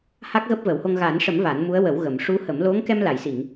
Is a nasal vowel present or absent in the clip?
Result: absent